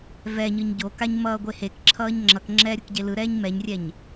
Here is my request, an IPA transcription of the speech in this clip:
vɛɲɯɲ ɟokaɲmʌː ɡʷehekǁʰʌːɲ ŋ͡ǁʌkŋ͡ǁɛːɾʲuk ɟelɯ ɾɛːɲmɛɲrʲɛɲ

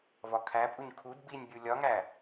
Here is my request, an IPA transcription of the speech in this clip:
vɒkʰæpʼuɲ kʰud binʲbʲu lʲɒŋæ

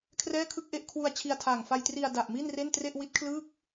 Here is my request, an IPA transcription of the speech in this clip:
kʰrɛː˥˩kʰɯ˥˩k̚ʔe˥˩ʔ kʰwu˧a̯ t͡ɕʰi˧a̯tʰaː˨˩ŋfa˧j tri˧a̯ da˨˩ʔmi˥˩n re˥˩ntre˥˩ʔ wi˦˥t̚kʰlɯː˥˩k̚

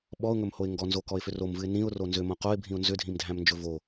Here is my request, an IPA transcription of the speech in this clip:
ɓɔʊ̯ŋɵmhoɪ̯ ŋɡɔnzokɔɪ̯fʏ romvɨɪ̯ nĩʊ̯ro nzʏmõ qoɪ̯bʱĩʊ̯ nzʏdʱĩmdʱæ̃mnd͡ʒɵ vo

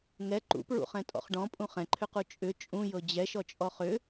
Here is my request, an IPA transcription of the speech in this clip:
ŋɛ ǃṵpɹṵχɛ̃ tʼɔ̰χɖɔ̃pʼũ χɛ̃ǃʰʏqu t͡ʃʼʏ t͡ʃʼũjɤ d͡ʑɛʃɔt͡ʃʼɔ χʏ

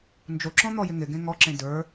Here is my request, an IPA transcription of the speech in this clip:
nd͡ʒoǁɔ̃ n̪ɔjɪŋɪɡẽ ŋɔǁẽ də˞

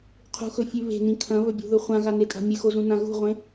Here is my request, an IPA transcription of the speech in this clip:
qʰṳxɵfʲʉ βe̤nĩ kʰɐ̃βɵbʲṳðɵ χʷãɣanetʼa̤ mʲɨxozũnã ɣṳʁʷẽ

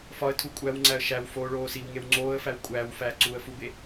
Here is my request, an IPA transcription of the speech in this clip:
fɒə̯tʰu kʷʼæwŋ͡ǀæə̯ ʃæw foːɭoːsiwŋew ŋ͡ǀoːə̯fæw kʷʼæːw fæːǀuːə̯fube

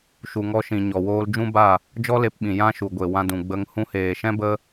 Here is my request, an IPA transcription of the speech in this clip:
ʃu˨ŋɔ˧ʃĩ˨ɲɔ˨ woː˧ld͡ʒũ˦ba˦˨ | d͡ʒɔ˦le˧pɓĩ˨ jã˦ʃu˨ɡʷe˨ wã˧dũ˨ ɡ͡bə˧ŋ hũ˧heː˨ʃɛ̃˦bə˦

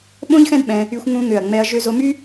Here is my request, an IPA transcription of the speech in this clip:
ɓõ˥ʎxɛ̃˥dɓɛ̃˧ | y˧xʷŋũ˧ŋø˨˩ɐ̯ŋ͡mɛ˧ɐ̯ ʒø˧zo˧my˥

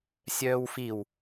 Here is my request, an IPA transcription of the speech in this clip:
sʲœːwfiw

